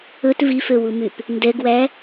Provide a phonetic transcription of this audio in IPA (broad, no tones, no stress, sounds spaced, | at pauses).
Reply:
ɵ t v i f ø w u m y p | n d ɛ ɡ w æ